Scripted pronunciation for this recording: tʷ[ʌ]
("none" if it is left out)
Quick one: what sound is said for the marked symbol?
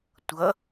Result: ʌ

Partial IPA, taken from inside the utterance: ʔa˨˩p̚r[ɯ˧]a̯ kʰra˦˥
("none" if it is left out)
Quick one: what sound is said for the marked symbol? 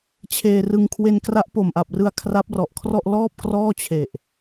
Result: ɯ˧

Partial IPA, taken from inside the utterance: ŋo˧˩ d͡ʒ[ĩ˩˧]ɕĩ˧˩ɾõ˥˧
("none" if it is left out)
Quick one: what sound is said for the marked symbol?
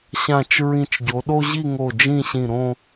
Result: ĩ˥˧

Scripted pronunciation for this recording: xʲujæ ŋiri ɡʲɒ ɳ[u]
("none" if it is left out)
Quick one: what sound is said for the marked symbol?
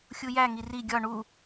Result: u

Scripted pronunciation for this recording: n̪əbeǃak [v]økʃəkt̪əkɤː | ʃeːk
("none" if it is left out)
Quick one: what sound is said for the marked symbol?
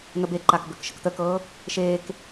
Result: b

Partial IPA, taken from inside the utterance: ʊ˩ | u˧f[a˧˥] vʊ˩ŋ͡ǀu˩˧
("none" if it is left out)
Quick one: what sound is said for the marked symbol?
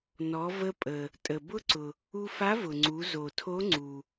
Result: a˧˥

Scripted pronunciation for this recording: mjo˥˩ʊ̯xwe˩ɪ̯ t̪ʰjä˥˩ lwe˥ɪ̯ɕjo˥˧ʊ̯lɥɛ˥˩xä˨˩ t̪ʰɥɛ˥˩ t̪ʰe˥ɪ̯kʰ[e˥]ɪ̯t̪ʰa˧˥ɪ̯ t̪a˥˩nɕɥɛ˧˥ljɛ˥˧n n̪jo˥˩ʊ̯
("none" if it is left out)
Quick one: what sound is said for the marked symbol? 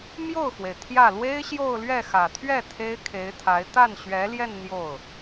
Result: e˧˥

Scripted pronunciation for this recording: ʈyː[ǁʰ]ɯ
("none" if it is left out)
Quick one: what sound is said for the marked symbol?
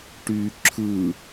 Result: ǁʰ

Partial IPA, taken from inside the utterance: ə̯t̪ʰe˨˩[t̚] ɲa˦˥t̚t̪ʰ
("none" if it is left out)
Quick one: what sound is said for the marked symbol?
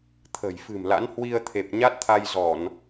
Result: p̚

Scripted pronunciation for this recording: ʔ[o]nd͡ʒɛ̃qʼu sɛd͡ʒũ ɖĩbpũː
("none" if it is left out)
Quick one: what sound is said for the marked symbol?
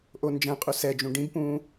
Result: o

